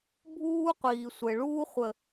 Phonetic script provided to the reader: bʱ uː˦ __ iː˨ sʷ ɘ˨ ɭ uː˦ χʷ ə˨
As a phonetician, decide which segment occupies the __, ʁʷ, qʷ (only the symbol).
qʷ